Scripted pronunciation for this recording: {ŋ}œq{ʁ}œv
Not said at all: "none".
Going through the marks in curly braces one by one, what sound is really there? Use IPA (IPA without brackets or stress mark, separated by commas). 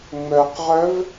ŋ͡m, ʁ